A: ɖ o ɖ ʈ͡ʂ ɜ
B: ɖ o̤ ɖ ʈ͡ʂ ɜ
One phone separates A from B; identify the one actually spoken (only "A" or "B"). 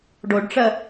A